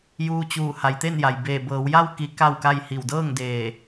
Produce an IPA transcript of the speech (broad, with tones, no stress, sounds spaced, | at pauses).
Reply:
j uː˧ t͡ɕ uː˧˩ h a˩˧ j t̪ e˥˨ n j a˩ j b eː˧˩ b ɤː˩˧ w j a˥˨ w k i˧˥ k a˥˨ w k a˥˨ j h i˧˩ w d ɤː˥˨ ŋ d eː˧˩